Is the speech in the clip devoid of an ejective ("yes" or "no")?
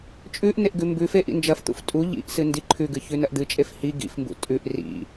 no